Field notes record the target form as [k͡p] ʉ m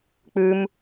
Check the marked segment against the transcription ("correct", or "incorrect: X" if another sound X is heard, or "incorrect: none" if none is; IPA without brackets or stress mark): correct